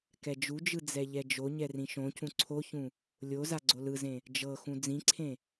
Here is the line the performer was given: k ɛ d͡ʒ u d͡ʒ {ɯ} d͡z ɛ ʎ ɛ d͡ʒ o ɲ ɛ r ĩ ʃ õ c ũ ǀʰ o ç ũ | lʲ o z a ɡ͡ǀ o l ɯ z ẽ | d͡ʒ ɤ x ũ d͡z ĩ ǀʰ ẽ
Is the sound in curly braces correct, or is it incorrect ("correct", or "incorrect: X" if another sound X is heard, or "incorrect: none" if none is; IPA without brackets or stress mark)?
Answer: correct